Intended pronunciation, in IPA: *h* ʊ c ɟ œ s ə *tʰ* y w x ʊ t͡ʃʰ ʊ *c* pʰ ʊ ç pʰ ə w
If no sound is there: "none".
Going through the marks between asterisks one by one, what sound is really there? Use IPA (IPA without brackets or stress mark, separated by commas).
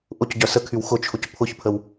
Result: ʔ, kʰ, c